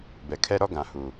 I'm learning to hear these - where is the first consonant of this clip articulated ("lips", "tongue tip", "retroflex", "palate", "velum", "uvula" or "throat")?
lips